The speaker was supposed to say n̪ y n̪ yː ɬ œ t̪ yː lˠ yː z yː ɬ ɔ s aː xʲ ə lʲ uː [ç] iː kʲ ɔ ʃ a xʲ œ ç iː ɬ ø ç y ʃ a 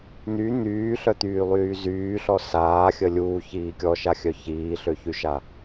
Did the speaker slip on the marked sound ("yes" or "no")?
no